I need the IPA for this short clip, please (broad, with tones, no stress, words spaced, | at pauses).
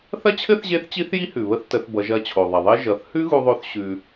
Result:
θɐ˥t͡ɕʰɘ˥θʑe˧˥θt͡ɕi˧˥θ ji˥hʉ˩βə˧˥θtə˩˧θ bʌ˩˧ʒɐ˧t͡ɕʰo˩ðˤɐ˩ ðˤɘ˥ ʒʌ˩˧θ hʉ˥ɣu˧ðˤo˧θ ɕʉ˧